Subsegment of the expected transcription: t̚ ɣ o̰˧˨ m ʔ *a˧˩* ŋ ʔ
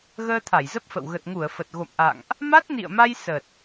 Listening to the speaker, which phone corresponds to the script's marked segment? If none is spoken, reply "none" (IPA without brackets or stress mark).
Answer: a̰˧˨